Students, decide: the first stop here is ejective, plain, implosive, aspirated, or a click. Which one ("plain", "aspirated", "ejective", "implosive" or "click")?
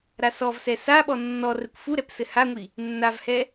implosive